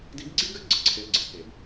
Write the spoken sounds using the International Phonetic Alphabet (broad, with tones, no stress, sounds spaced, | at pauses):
d i˧˥ ɡ ɡ͡ǀ i˥ ɡ ɘ˥ ɡ͡ǀ ə˩ ǀʰ e˧ ə̯ ɡ͡ǀ e˩˧ k e˩ b